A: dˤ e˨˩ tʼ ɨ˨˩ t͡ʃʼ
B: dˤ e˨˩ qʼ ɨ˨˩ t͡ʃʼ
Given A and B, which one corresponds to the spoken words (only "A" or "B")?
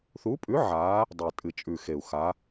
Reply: A